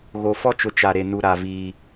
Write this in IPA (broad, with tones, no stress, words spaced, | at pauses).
ɣo˨ fɔ˦t͡ʃʊ˨ t͡ʃa˨ɾe˨ nu˨ɾa˨viː˨